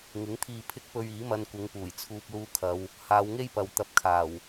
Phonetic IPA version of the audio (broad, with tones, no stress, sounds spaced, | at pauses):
ŋ ɪ˨˥ ŋ t̪ʰ iː˧ pʰ ɪ˥ k̚ p ɵ˧ ɥ iː˨˥ m ɐ˧ n kʷ ɪ˨˧ ŋ p uː˨˩ j t͡sʰ uː˧ p̚ l uː˧ kʰ ɐ˨˧ w | h aː˨˧ w ŋ e˥ j p ɐ˨ w t̪ ɐ˧ p̚ kʰ aː˨˩ w